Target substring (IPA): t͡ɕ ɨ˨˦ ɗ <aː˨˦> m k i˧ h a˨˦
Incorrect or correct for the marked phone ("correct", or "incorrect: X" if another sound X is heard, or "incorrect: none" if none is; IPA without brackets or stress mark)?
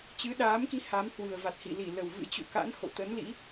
correct